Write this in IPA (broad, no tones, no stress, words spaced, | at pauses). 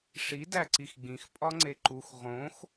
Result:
ʂi dæǀixɡ͡bĩx pʼɒŋ͡ǀeǃux ʁõx